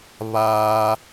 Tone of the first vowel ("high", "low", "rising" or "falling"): high